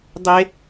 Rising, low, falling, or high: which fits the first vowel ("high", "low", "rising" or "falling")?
high